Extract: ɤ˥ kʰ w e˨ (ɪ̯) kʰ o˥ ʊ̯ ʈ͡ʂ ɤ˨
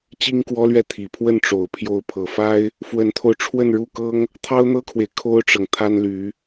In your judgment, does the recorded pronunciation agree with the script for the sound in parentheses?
yes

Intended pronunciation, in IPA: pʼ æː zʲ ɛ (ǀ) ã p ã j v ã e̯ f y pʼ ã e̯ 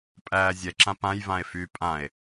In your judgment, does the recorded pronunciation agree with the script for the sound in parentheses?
no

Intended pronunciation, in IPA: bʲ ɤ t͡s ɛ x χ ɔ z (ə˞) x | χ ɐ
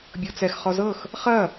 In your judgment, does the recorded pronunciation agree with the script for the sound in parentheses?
no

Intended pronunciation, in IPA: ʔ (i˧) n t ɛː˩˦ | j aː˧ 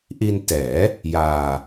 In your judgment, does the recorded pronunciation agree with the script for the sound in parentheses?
yes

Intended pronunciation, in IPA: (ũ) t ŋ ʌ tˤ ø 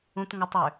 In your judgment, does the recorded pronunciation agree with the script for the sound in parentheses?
yes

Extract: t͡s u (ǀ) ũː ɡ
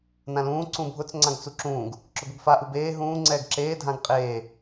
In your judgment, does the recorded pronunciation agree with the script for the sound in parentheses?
no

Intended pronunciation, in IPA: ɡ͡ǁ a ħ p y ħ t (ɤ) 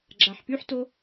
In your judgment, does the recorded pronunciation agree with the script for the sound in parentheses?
no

